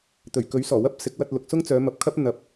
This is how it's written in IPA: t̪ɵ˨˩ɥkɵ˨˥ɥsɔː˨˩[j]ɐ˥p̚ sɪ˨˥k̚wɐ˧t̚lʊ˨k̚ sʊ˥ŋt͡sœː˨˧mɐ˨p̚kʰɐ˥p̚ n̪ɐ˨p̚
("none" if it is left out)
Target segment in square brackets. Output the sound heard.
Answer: w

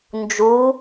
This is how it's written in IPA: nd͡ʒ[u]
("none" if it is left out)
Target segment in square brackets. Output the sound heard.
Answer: u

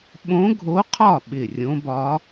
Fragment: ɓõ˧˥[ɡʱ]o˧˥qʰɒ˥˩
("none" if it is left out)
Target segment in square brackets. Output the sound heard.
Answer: ɡʱ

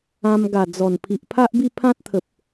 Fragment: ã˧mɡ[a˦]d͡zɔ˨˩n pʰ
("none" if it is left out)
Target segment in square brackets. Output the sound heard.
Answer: a˨˩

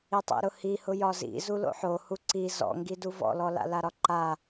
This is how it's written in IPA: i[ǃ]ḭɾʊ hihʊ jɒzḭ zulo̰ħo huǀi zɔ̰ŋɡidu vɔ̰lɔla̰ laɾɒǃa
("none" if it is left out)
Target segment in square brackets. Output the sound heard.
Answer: tˤ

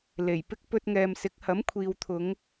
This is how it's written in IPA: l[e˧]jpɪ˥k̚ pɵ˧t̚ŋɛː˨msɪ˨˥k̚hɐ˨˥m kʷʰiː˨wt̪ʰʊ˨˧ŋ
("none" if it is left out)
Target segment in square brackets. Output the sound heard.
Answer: e˨˩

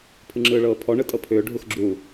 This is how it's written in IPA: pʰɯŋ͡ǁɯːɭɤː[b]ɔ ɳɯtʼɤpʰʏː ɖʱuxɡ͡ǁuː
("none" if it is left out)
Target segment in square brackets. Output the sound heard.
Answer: pʰ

